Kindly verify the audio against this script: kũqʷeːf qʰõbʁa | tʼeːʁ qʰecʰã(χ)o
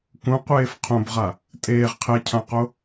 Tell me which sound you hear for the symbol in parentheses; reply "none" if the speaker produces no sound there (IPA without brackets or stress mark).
q